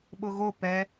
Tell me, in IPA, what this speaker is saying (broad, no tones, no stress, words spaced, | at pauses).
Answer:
ɓʊɣo pɛ